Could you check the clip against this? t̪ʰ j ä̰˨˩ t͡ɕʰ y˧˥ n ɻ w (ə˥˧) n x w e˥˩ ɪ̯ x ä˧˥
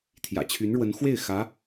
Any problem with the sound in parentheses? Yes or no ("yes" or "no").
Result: yes